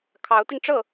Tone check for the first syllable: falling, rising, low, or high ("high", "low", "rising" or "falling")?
rising